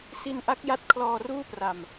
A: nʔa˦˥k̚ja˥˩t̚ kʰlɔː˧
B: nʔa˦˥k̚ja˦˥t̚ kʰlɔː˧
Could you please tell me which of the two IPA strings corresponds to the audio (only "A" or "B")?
B